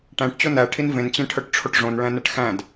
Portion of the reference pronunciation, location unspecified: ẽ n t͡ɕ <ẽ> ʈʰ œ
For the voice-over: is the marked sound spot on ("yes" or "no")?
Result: yes